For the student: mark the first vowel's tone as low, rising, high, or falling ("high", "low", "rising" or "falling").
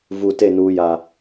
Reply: low